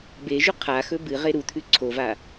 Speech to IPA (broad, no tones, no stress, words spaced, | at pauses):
beʒʉ qʰaxɵ bɨʁe ɾut̪ʰʉ ǀʰova